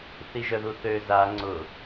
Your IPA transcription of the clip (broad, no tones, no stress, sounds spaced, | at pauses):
θ i ʒ œ ð u θ ø z a ŋ͡ǀ ʊ